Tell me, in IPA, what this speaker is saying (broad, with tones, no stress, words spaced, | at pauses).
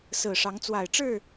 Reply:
sɹ̩˨˩ʂɑ˨˦ŋt͡swa˨˩ɪ̯ʈ͡ʂɻ̩˥˨